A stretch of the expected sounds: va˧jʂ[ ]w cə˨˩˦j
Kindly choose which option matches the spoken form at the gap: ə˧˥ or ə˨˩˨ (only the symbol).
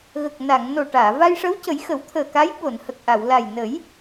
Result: ə˧˥